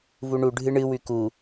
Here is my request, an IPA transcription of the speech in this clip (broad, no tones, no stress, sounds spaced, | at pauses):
v u ɳ u ɖʱ ɨ ɳ ɨ w ʉ k u